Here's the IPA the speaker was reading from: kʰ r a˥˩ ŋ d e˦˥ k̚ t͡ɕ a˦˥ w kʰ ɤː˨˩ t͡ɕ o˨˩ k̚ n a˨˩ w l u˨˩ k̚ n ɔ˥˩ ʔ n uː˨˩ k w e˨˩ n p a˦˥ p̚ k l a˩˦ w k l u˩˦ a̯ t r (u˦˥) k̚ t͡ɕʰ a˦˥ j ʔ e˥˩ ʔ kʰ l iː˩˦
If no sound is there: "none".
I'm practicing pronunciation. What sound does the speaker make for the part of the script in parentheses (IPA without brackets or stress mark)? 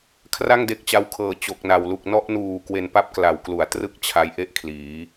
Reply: ɯ˦˥